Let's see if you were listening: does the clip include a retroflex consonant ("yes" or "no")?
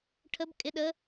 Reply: yes